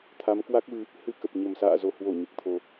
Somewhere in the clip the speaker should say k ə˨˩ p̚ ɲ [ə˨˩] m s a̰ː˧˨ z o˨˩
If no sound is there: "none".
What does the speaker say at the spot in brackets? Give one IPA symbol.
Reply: ə˨˩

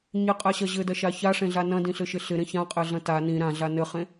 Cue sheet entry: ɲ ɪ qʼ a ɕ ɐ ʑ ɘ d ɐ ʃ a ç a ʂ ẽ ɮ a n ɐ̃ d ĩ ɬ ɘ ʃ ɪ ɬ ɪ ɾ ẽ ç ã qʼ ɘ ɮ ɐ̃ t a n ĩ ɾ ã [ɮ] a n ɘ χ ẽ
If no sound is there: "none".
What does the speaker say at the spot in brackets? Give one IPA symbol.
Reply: ɮ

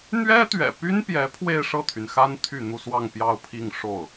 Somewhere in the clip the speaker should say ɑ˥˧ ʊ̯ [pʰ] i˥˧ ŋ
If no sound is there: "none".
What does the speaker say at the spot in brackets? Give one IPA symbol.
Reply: pʰ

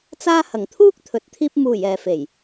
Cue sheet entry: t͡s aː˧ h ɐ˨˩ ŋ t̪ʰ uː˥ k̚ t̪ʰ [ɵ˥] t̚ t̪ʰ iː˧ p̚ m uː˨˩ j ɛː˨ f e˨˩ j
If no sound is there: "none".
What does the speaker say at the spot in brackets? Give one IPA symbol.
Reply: ɵ˨˥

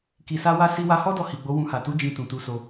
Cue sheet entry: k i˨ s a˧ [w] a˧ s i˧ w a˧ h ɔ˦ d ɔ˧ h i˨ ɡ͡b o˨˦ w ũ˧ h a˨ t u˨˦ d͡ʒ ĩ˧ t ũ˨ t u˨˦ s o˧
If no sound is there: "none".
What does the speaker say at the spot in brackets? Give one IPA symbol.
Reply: w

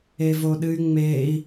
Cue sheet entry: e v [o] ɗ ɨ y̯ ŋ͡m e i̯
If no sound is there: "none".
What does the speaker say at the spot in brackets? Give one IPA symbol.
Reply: o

